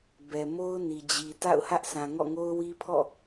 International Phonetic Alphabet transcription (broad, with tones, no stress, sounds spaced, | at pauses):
b ɛ˨ m o˦ ʊ̯ n i˨ d͡ʑ i˨ t a̰˦˨ ʊ̯ h ä˦ ʔ sʰ ã˨ ŋ ɔ̰˦˨ ŋ o˦ ʊ̯ w i˦ pʰ ɔ̰˦˨